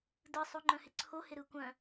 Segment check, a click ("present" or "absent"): present